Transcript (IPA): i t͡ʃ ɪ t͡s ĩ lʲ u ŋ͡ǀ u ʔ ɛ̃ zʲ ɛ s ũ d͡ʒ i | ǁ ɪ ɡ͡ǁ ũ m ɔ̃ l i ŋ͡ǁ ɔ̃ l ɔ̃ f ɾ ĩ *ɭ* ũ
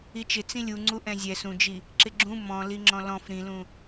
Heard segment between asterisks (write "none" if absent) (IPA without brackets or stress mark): l